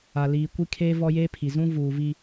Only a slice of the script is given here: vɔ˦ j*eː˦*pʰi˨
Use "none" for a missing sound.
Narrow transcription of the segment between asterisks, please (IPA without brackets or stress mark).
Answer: eː˦